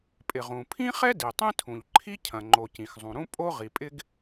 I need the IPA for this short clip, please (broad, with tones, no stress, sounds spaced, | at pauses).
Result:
pʼ ɪ˩ ʁ ũ˩ pʰ ĩ˥ χ ɛ˥ d i˩ tˤ ĩ˥ tʰ ũ˩ ʎ ǃʰ i˥ cʰ ɐ̃˩ ŋ͡ǃ o˩ c ĩ˩ x zˤ ũ˩ ɾ ũ˥ pʼ o˥ ʁ i˩ pʼ ɪ˥ ɡ